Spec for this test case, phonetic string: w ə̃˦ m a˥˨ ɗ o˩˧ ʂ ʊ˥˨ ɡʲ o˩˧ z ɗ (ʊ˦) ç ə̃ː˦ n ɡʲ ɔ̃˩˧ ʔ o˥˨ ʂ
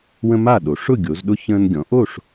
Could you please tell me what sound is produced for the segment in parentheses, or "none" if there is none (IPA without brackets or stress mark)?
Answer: ʊ˦